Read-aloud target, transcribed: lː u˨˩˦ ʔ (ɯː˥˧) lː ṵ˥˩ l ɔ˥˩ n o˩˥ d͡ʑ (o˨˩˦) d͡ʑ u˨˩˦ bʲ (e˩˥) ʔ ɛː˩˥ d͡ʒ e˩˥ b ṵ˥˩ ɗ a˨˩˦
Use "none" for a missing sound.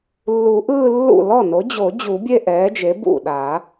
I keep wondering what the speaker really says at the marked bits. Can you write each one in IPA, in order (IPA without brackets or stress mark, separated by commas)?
ɯː˥˧, o˨˩˦, e˥˧